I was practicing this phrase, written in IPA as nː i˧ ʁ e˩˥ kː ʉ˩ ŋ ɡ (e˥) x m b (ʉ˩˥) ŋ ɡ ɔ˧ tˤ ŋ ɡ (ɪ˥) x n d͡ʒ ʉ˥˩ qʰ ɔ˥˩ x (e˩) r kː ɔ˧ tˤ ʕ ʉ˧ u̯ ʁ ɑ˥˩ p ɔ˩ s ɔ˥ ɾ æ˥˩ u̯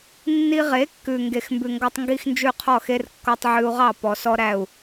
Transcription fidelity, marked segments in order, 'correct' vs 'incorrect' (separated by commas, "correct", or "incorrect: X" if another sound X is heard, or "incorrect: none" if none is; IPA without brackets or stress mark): incorrect: e˩, incorrect: ʉ˩, incorrect: i˥, incorrect: e˥